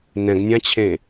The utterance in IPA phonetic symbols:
nɛ̃ɡnʲãt͡ɕʰẽ

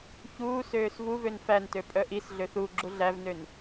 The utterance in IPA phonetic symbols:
çuːs øːsvuvøn fæntø pʼœʔisɮøθ u ɡ͡ǁuɮævnøn

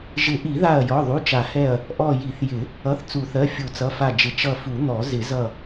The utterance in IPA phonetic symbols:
ʒɪ˨˩˦ʔi˨˩˦ða˧˩ɐ̯ jɔ˩˧˩ðˤu˩˧˩t͡ʃa˨˩˦hɛ˧˩ɐ̯ | ʔɔ˧˩ ji˨˩˦θjɪ˨˩˦ | ʌ˩˧˩θ t͡su˨˩˦θɜ˩˧˩ fʲu˨˩˦t͡sʌ˩˧˩fa˧˩d͡ʒɪ˨˩˦ t͡ʃʌ˧˩fu˨˩˦n̪ɔ˨˩˦ zɪ˨˩˦zʌ˧˩

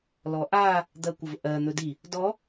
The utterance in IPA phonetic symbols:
lɔʔa | d̪ɜkʷəvʔɜ n̪ɵdi | dɔ

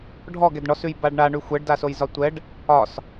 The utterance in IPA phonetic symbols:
ɖʱɔɡ ɛdɳɔsʉj baɖɳa ɳʉxʷɛɖdasoj zɒtʷɛɖ | ɒs

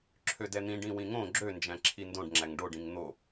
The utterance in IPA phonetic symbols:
ǁʰødɛn̪ĩɖ ĩwĩŋõ ɡ͡ǁønd͡ʒæ̃ǁʰi ndõɖŋ͡ǁæŋ ɖoɖĩŋ n̪o

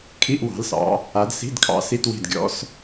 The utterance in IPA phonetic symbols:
kʰi˧˥˧ʔwɑ̤˨˦lsɑ̰˨˦ | a˨˦dsi̤˧˥˧dkʰɑ̰˨˦ si˧˥˧twi̤˦˨d ɡʲɔ̰˨˦s

